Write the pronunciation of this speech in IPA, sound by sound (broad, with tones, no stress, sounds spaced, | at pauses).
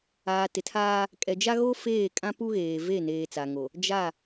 aː˨ t ɪ˨ tʰ aː˦ | kʼ ɛ˨ d͡ʒ a˦ ɣ o˦ f eː˦˨ kʼ ã˦ p u˦ ɣ eː˨ v e˦˨ n eː˨ t͡s a˨ ŋ o˨ | d͡ʒ a˦˨